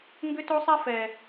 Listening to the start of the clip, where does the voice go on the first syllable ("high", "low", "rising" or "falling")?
high